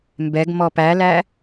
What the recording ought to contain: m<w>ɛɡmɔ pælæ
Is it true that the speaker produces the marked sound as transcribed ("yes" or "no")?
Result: no